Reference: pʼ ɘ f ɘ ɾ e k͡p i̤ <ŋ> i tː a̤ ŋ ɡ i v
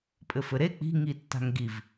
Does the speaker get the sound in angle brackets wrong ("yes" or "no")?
no